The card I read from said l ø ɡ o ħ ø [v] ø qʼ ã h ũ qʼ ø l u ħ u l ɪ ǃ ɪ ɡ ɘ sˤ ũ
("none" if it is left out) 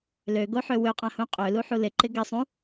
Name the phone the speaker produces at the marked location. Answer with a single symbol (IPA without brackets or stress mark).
w